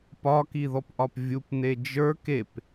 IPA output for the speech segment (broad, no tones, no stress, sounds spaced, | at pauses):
p ɒ k i ð ɔ p ʔ ɒ p vʲ u p n e d͡ʒ ə˞ k e p